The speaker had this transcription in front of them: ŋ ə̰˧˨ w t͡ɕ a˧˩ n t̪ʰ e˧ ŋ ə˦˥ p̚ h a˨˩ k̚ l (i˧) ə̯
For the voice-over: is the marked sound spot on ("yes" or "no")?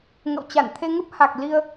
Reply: yes